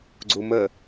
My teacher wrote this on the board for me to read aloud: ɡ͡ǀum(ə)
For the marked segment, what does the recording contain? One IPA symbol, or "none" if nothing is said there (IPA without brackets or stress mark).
ə